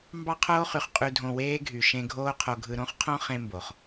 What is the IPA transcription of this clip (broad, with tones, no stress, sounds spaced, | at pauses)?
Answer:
m b ɑ˦ qʰ oː˦ χ y˨ χ qʼ y˧ dʱ õ˧ w eː˦ ɡʱ y˨ ʃ ẽ˧ ɡʱ oː˦ qʰ o˧ ɡʱ ɯ˧ ɾ õ˦ χ qʰ õ˦ χ ẽ˦ m b o˨ χ